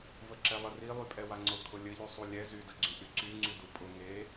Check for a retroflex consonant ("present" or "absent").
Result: absent